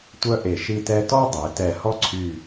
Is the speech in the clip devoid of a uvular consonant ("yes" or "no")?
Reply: yes